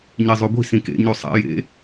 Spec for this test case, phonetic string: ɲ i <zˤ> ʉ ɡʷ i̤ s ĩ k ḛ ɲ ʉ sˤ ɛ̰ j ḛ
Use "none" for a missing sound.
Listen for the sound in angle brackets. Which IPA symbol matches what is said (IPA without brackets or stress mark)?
zˤ